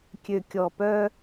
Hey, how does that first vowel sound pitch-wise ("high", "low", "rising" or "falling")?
low